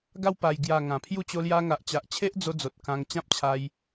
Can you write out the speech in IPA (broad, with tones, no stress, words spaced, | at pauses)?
ɡa˧wpa˨˩jɡja˨˩ ŋã˨˩pʰju˥˧ t͡ɕo˧lja˧ ŋa˨ʔt͡ɕa˨ʔt͡ɕʰe˦ʔd͡zo˧ d͡zo˨t̚kã˧ŋt͡ɕã˦p̚t͡ɕʰa˧j